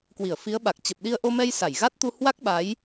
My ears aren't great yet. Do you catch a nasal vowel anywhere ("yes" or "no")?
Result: no